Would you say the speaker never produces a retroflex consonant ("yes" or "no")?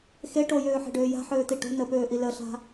no